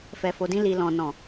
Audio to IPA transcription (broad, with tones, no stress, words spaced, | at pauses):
fɛ˨fo˨dĩ˧ li˨lɔ̃˨nɔ̃˨